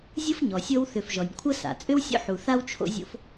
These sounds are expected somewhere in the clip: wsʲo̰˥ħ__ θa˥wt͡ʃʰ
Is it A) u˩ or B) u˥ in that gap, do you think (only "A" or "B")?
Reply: A